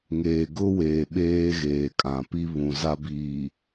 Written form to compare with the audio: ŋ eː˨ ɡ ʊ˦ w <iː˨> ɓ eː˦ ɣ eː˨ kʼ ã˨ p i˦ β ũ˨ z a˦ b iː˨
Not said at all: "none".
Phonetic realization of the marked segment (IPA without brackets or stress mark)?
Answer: eː˨